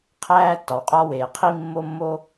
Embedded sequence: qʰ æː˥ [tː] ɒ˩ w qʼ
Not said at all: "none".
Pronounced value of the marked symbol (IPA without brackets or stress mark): tː